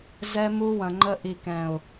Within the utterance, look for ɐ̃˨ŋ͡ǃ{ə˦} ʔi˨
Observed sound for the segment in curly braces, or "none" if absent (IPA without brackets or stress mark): ə˦